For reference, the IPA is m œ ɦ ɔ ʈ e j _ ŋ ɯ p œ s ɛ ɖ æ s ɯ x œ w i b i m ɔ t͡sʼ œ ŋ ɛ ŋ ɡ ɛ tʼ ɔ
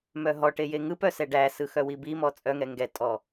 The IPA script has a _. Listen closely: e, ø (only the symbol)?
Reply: e